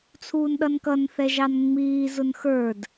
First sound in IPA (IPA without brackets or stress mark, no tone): t͡sʰ